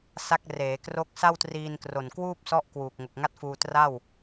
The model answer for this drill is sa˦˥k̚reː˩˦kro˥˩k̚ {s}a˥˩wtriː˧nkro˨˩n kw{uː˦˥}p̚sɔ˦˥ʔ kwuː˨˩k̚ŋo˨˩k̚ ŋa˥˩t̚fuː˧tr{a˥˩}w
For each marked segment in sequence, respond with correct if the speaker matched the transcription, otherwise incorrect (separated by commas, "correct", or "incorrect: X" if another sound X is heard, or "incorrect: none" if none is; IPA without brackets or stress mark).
correct, incorrect: uː˥˩, correct